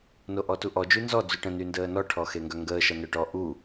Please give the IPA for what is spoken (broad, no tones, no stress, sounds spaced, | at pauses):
n o ʔ ɔ t u ʔ ɔ d͡ʒ y n z ɔ d͡z y ʈ ə̃ n y n d əː n ɔ ʈʰ ɔ x e ŋ ɡ œ ŋ ɡ əː ʃ ɐ n œ ʈ ɔ ʔ u